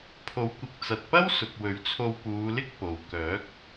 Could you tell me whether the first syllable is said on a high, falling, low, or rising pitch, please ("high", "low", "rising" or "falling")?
rising